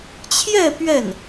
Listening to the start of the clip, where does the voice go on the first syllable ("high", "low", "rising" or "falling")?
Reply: falling